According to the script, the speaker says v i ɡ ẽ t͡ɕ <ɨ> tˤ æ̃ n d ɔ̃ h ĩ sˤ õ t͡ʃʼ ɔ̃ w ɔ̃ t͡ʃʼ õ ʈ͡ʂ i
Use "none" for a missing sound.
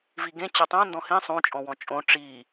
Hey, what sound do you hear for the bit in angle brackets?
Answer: ɛ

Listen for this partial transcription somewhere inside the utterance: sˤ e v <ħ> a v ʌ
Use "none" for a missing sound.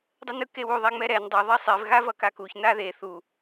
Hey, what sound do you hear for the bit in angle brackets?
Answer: ɣ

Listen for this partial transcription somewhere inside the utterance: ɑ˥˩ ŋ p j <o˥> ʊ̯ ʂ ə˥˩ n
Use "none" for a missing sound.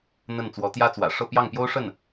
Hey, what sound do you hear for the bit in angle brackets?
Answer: o˥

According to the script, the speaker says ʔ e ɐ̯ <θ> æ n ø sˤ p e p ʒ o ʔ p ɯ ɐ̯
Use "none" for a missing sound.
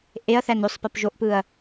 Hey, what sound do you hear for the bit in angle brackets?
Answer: θ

